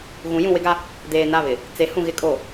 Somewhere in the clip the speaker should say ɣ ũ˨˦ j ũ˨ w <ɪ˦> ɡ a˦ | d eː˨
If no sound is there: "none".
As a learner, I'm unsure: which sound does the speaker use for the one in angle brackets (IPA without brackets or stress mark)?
ɪ˦